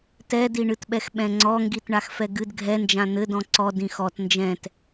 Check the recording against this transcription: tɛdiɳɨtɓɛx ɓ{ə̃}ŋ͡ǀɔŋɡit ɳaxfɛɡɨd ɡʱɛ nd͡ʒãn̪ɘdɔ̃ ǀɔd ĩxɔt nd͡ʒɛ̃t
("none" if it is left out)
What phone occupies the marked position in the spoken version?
ɛ̃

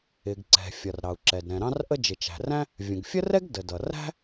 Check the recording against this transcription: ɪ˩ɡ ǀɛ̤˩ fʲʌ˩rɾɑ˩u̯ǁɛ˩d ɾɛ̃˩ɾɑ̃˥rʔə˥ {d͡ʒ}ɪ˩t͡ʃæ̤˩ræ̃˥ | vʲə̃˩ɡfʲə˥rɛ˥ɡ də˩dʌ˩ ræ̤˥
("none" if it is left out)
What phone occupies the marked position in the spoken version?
d͡ʒ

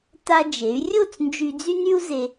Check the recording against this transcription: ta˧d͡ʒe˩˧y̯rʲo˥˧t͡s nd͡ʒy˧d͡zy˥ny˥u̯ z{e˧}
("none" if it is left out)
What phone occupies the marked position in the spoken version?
e˧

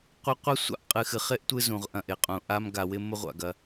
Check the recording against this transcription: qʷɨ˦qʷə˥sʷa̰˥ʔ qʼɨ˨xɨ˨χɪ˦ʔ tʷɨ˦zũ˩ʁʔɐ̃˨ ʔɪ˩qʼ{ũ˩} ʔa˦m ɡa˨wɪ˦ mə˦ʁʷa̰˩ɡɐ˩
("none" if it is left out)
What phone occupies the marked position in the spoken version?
ũ˩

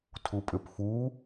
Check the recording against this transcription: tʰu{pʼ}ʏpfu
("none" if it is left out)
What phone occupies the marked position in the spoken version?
pʼ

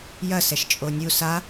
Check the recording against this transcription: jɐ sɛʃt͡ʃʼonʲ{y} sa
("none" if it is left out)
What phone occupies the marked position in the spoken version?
u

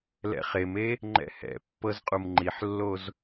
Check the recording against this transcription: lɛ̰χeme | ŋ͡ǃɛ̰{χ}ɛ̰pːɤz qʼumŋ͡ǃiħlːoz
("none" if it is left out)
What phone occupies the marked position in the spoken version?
h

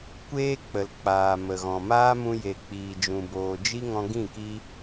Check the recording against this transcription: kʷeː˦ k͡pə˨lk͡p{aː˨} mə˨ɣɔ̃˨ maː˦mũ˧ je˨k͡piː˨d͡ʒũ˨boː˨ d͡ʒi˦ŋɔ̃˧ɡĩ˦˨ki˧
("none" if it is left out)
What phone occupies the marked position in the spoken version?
aː˨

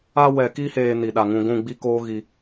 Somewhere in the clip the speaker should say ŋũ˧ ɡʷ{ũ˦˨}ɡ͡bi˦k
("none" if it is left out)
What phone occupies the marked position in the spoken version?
ũ˦˨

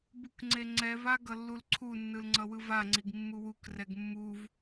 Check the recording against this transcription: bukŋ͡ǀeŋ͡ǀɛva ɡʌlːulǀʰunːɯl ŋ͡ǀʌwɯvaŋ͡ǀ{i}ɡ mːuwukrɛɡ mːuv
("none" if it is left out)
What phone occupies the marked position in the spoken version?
i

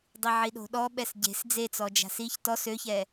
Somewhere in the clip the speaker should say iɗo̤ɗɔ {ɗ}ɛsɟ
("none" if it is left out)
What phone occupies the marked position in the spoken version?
ɓ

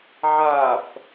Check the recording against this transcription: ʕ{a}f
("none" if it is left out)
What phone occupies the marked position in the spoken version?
a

